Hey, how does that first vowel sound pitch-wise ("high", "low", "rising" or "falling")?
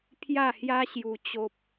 falling